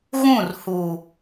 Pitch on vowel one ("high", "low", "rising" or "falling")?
falling